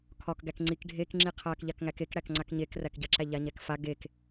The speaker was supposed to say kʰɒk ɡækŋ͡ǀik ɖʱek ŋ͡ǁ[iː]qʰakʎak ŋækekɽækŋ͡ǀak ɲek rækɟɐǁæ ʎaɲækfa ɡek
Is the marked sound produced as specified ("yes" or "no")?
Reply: no